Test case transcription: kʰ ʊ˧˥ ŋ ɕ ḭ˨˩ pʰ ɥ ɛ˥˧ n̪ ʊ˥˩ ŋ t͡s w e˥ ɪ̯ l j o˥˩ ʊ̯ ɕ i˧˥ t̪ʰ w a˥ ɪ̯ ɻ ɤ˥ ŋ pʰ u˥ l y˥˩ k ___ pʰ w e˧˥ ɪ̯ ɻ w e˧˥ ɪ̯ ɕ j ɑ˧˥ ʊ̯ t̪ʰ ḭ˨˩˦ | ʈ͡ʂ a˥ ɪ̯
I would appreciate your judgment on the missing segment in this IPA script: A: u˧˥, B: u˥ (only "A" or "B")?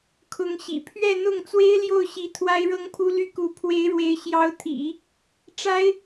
A